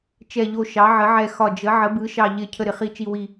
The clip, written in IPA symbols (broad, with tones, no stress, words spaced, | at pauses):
t͡ʃɛ˨˩ʎo˨˩ ʃɑ˩˧ʕə˩˧ʕɛ˨˩ xɒ˨˩d͡ʒə˩˧ ʕə˩˧bɯ˩˧ʃɑ˨˩ ʎɪ˨˩ cʰə˨˩ɾɪ˨˩ χi˨˩t͡ʃi˨˩wi˨˩